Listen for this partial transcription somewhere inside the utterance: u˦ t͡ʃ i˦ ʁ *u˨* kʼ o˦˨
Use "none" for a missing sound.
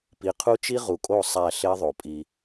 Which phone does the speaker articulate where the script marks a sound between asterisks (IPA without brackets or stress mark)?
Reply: u˨